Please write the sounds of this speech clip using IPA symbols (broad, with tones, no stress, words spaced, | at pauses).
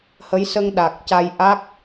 hə˧˥jsə˧ŋ ɗa˨˩k̚ca˧j ʔa˦˥k̚